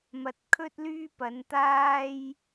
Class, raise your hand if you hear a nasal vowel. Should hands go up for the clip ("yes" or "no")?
no